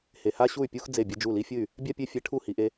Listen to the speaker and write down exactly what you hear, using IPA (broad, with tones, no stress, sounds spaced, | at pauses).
h e˨ h a˦ ɕ u˦˨ y̯ pʲ u˦ x d͡z e˦˨ bʲ ɨ˧ d͡ʒ u˦˨ l i˧ fʲ ɨ˦˨ y̯ | bʲ a˦ pʲ e˧ fʲ ɛ˧ ʈʰ u˦˨ h i˧ ʔ e˦